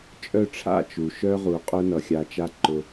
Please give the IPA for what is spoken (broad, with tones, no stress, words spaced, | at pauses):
t͡ʃʼœ˦˨ʈ͡ʂʰa̰˦˨ t͡ʃu˨ʃœ˦ʁu˨ qʼʊ˦nʌ˨xʲa˧t͡ʃa˦ ǃʊ˧